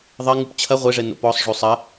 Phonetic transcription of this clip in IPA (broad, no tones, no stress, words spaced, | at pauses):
ðˤɐ ŋupt͡ɕʰɐ ʁʷeʐɛ no̰pɔsˤ ʐosˤɐ